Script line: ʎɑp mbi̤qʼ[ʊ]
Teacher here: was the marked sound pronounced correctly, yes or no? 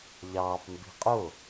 yes